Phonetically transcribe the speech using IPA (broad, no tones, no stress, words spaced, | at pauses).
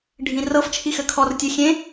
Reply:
ɖʱĩrɤf t͡ʃʰixɘkʰɔr tʲɘxʲẽ